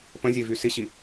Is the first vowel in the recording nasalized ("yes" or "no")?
yes